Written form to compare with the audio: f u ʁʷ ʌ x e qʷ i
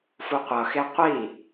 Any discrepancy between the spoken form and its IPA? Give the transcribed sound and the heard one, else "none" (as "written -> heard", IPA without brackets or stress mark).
ʁʷ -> qʷ